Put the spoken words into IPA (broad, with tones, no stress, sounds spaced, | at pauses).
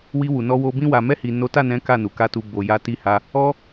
w i˧ w u˨ n ɔ˧ w o˧ b ĩ˧ w a˨ m ɛ˧ h i˨ n o˨˦ t a˦˨ n ɛ̃˨˦ k a˦˨ n u˨ k a˧ t u˨ b o˨ j a˨˦ t i˧ h a˧ | ɔ˧